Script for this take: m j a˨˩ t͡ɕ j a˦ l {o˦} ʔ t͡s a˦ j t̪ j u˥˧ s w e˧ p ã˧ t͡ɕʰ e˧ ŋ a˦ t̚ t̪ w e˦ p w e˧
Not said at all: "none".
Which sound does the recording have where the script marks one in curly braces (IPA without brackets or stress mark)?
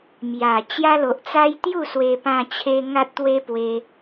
o˨